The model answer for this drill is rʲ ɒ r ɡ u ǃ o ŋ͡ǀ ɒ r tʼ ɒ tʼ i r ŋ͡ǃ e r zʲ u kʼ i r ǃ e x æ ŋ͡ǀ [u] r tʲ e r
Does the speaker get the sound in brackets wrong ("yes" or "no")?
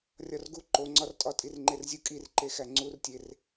no